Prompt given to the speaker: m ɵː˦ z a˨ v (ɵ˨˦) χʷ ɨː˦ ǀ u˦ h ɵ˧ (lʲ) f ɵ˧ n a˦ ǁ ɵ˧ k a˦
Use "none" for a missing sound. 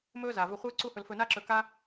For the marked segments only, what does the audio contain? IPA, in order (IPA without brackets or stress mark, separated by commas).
ɵ˧, l